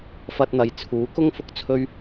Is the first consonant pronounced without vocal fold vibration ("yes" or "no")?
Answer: yes